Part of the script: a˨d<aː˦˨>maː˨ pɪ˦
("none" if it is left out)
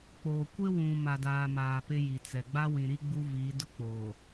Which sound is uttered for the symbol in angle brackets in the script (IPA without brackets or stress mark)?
aː˨